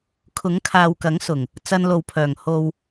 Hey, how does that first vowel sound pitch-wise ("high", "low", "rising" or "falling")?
rising